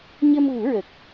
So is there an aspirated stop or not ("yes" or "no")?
no